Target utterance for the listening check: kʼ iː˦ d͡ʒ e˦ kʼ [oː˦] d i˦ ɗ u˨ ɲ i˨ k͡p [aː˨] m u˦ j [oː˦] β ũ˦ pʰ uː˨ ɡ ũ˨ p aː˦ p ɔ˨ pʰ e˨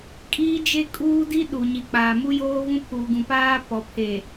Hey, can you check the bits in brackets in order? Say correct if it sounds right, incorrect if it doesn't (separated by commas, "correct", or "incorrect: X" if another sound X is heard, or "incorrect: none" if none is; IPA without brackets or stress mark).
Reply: incorrect: uː˦, correct, correct